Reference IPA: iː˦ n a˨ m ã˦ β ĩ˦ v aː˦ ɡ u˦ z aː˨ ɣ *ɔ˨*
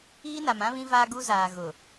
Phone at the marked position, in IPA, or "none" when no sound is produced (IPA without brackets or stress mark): ʊ˨